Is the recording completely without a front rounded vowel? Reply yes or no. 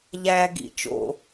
yes